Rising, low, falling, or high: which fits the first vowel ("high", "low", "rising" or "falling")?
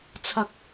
low